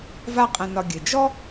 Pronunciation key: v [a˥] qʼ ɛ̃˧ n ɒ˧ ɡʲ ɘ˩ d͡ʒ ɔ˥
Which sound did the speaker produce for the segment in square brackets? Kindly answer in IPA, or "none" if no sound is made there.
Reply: a˥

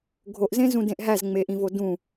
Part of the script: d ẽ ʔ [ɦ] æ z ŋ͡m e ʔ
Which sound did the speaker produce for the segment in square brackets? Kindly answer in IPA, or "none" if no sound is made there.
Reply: ɦ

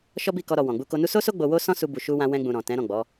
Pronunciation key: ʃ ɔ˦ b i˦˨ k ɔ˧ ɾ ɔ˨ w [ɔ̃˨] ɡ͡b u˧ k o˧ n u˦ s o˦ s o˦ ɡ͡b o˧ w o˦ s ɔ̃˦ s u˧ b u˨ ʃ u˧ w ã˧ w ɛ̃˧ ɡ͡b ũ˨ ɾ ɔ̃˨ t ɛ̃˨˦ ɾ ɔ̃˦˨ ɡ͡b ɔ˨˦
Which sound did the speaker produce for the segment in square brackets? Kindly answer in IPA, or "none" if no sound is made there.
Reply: ɔ̃˨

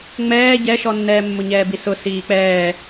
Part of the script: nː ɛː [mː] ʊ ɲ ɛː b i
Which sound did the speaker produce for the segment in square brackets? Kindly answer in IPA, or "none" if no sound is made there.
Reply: mː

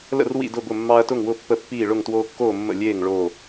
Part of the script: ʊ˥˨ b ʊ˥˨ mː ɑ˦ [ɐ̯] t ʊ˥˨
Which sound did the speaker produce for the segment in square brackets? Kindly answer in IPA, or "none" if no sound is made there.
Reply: ɐ̯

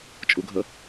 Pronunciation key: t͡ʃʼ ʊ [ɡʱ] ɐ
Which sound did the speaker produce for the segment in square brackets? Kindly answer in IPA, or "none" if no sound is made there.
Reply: ɡʱ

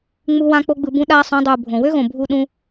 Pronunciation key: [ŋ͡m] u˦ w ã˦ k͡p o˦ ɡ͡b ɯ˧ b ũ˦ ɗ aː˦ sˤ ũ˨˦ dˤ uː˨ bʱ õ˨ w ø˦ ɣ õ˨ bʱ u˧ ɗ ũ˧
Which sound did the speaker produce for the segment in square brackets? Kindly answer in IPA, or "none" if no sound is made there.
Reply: ŋ͡m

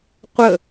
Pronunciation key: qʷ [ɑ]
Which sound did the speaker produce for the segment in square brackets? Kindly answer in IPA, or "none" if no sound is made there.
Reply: ə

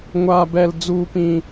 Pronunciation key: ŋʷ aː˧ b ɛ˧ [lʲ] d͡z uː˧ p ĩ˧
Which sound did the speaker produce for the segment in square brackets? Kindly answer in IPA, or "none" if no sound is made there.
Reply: l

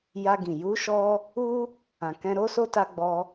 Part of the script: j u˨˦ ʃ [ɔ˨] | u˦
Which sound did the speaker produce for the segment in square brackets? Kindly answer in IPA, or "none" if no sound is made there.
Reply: ɔ˧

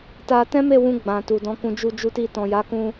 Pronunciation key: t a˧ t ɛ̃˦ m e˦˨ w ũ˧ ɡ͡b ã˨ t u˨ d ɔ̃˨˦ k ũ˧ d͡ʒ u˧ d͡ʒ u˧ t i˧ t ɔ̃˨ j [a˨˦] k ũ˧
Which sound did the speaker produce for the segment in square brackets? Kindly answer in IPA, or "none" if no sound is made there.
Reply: a˨˦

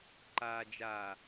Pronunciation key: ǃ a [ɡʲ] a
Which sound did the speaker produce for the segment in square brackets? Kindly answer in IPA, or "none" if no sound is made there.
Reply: d͡ʒ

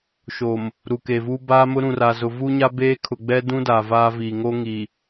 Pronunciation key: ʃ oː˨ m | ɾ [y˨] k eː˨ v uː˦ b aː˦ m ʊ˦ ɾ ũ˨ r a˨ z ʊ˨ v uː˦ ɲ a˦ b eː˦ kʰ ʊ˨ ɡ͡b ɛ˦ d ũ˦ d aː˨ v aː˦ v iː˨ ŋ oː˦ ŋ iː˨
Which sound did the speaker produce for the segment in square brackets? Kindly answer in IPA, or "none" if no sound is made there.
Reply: u˨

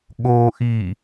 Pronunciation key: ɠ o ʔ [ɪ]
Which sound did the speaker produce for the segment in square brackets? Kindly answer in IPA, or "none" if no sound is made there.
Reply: i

